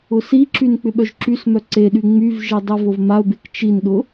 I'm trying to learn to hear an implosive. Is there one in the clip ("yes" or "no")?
yes